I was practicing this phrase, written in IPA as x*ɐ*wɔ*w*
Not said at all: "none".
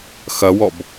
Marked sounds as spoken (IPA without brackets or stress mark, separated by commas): ɐ, b